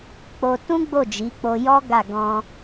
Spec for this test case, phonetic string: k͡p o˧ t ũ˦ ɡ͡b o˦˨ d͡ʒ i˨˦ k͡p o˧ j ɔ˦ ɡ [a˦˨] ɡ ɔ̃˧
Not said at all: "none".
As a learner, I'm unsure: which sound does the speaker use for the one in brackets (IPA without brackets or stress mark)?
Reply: a˦˨